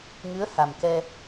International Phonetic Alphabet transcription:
ŋ ɨ˧˥ ə̯ h a˨˩ m k ɛ˧

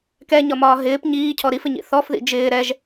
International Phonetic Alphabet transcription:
k ɛ ɲ ɒ m ɒː ɦ ɪː p ɲ iː cʰ ɔ ɾ i f ɪ ɲ ḭ θ ɔ f ð ḭ d͡ʒ ɪː ɾ ɛ ʒ

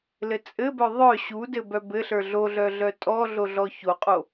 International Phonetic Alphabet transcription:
l ɘ t͡sʼ ɘ b œ ðˤ œ ɕ u d ɘ b œ b ɘ ɬ ə˞ ɮ o ɮ œ ɮ œ tʼ ɔ ɮ o ɮ ɔ ç o qʼ o

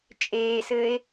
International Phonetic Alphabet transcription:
t͡ʃʼ eː s ɘː e̯

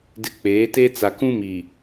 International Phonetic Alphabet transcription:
d ɪ˨ k͡p eː˨˦ t e˦ t͡s a˨ k ũ˦ m i˨

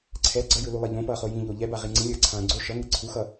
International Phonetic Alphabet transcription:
ǀʰ ɛ ɡ͡ǀ ʌ j ɯ l u lˠ e ʎ õ p ʌː χ o j ĩ ʎ o ʎ ɛ b a ʁ i ŋ͡ǀ ĩ lʲ ʌː ǀʰ ãː ɡ͡ǀ o ʃ ʌ ŋ e ǀʰ u x ʌ

